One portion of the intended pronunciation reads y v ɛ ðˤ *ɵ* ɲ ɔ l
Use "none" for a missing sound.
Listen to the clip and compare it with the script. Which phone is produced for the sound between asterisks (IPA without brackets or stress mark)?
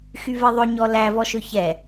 ɵ